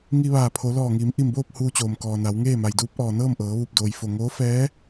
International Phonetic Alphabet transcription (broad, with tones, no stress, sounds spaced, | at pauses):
ŋ i˧ ʋ aː˧˩ pʰ o˩˧ l ɔː˧˩ ŋ iː˩˧ m ʔ i˧˩ m b oː˥˨ p̚ h uː˧ t͡ɕ oː˩ m k ɔː˩ n a˩˧ w ŋ eː˥˨ m a˩ j d uː˧˥ p̚ ʔ ɔː˩ n ɤː˥˨ m ʔ ɤː˩˧ ʋ u˧˩ p̚ d oː˩ j f o˧˩ ŋ oː˧˥ f ɛː˧˥